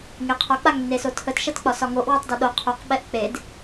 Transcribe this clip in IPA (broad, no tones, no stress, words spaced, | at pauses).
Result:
ŋeqʰɒ k͡paŋnːesotʰət ʃɜtk͡pɒsɒŋoʔ wotˤdɒɗo qʰoq ɓɛʔk͡ped